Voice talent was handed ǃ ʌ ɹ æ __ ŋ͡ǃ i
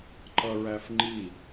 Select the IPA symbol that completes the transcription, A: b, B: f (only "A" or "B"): B